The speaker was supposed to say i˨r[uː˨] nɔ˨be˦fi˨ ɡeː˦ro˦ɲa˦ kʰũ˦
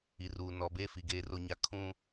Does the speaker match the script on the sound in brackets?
yes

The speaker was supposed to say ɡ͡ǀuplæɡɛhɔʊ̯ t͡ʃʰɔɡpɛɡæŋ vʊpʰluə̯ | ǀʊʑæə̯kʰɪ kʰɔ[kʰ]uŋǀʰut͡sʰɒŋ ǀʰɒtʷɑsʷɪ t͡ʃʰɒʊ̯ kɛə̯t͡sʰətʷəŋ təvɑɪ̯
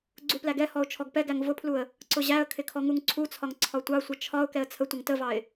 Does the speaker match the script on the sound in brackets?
no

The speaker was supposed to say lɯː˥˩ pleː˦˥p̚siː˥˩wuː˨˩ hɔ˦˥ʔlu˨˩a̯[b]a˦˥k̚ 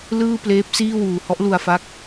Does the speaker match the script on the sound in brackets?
no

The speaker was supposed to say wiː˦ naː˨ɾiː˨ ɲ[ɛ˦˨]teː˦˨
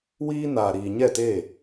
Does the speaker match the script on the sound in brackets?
yes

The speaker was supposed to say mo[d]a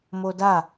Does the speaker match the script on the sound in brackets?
yes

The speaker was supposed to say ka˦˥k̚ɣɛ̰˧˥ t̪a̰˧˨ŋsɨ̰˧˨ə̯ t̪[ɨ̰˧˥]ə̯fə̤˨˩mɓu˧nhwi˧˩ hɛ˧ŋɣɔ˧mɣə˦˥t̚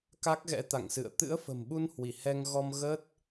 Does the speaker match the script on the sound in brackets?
yes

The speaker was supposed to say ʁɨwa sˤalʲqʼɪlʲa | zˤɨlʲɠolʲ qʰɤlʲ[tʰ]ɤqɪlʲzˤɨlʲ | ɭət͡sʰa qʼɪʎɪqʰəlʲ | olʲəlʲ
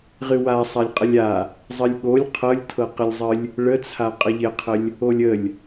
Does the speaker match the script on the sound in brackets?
yes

